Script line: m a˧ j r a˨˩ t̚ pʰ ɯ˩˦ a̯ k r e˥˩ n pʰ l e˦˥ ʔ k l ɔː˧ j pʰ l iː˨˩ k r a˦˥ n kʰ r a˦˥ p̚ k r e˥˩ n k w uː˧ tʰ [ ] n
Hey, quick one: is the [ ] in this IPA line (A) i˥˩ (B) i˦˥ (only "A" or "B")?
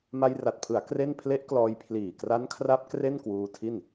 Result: A